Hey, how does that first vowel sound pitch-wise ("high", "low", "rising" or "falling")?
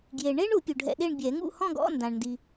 low